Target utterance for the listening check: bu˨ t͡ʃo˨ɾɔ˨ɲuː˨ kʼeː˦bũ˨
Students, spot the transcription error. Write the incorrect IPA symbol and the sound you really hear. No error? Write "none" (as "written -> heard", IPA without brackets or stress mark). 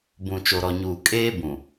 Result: u˨ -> ũ˨